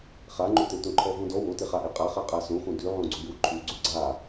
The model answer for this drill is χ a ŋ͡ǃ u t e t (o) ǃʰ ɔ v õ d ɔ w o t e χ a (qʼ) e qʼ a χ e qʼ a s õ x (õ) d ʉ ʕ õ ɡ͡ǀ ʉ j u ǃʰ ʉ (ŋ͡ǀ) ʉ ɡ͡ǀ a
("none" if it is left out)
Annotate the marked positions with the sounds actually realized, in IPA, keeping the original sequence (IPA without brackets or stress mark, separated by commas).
õ, ʔ, õ, ɡ͡ǀ